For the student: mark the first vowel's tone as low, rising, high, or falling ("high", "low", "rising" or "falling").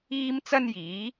high